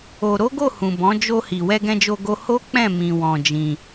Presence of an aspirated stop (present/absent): absent